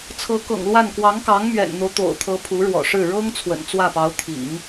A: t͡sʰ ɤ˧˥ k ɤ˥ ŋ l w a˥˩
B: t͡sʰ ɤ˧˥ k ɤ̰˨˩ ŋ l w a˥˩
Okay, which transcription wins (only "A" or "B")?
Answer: B